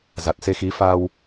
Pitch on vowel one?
low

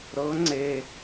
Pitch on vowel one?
rising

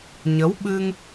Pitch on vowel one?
rising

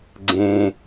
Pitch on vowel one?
low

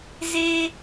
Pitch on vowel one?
high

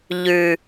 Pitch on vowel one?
low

